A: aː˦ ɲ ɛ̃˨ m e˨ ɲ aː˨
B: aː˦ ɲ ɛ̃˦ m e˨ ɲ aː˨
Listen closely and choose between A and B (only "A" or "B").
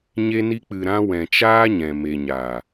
A